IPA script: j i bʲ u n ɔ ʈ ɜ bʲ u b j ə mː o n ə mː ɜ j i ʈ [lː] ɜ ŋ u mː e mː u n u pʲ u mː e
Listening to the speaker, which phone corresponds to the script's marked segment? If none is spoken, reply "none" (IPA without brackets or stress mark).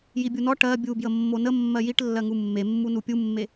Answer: lː